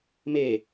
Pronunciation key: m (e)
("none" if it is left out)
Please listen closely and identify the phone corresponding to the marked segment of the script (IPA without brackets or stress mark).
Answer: e